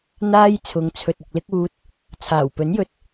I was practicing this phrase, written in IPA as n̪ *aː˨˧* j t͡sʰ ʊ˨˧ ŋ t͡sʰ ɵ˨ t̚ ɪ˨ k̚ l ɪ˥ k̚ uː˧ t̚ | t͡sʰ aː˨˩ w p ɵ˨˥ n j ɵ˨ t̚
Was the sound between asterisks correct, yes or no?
no